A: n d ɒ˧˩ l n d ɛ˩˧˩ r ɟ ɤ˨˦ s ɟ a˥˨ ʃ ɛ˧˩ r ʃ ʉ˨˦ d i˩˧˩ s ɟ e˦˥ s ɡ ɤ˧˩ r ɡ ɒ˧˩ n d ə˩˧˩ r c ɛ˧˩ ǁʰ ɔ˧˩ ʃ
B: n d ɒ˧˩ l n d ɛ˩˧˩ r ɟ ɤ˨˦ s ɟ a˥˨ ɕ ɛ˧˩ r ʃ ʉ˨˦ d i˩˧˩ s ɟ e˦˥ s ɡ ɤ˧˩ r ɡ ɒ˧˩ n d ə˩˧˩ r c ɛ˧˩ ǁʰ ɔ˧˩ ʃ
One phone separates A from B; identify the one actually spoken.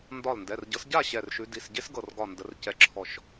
B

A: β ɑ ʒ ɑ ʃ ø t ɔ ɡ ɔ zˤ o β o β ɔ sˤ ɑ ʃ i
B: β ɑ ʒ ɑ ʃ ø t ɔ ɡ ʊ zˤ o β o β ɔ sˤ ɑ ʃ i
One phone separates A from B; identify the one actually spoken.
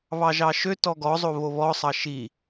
A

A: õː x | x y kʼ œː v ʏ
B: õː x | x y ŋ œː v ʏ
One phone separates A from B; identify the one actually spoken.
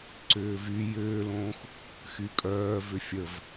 A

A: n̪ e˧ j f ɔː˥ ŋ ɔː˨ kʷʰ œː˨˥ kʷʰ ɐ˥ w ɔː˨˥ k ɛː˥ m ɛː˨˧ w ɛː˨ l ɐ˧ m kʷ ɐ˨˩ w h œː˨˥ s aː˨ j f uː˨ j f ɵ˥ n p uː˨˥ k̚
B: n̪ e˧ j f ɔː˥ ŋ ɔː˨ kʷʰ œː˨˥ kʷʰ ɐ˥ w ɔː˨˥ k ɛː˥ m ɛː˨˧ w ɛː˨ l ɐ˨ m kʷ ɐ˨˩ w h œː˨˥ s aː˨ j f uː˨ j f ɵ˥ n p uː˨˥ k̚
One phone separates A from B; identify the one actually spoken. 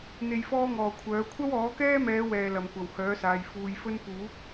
B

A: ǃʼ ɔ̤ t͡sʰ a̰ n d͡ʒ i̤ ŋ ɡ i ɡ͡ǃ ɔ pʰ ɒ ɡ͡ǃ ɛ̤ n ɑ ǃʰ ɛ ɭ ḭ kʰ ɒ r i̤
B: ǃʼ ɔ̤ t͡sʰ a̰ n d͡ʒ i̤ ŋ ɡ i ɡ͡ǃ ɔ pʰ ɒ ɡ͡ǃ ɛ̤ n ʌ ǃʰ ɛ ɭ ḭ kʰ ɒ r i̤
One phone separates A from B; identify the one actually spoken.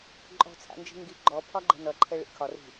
B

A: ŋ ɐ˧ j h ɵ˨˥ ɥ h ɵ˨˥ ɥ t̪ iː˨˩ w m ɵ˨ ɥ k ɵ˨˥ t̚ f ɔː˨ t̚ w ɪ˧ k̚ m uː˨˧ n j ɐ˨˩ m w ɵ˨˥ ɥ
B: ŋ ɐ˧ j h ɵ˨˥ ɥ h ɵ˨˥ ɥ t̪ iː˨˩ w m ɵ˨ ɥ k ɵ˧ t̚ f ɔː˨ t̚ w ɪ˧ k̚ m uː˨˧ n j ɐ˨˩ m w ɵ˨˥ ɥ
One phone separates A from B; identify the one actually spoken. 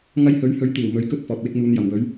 B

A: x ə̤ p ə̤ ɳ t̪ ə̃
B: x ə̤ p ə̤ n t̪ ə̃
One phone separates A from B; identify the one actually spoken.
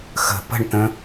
A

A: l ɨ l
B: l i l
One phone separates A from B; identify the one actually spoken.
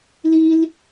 B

